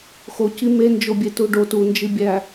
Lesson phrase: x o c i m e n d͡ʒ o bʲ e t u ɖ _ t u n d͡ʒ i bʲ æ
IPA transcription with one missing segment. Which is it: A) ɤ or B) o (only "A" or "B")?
B